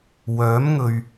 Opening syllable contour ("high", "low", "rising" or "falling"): rising